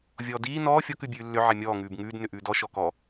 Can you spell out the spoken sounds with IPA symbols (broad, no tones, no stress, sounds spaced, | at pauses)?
vʲ ɔː d iː n ɔː fʲ ɔ k ʉ bʲ ʉː lː ʏ ʕ ɛ mʲ ɔː ŋ ʉː b ŋ ʉː d n ʏ ʔ ʉː d ɔ ʃ ɔ k ɔ